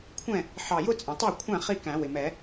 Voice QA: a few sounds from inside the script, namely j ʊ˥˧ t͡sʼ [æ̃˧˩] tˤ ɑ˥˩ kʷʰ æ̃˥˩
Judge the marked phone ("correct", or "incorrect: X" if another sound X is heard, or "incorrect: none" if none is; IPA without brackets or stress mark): incorrect: æ̃˩